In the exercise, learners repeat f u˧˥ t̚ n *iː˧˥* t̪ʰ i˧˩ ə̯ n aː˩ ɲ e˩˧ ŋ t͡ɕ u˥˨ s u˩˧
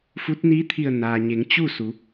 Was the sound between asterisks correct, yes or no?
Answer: yes